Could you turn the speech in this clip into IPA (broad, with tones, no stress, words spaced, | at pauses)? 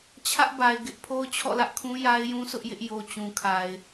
t͡ɕʰä˦ʔba˨ɪ̯ɡɪ˦ʔ pʰo˦ʊ̯t͡ɕʰɔ̰˦˨lä˦ʔkʰũ˦ ja˦ɪ̯jũ˦sʊ˦ʔjɪ˦ʔ jo˨ t͡ɕũ˨kʰa˨ɪ̯